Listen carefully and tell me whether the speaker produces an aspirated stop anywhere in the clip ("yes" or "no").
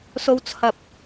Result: yes